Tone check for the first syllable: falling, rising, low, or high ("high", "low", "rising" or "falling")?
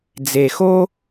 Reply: low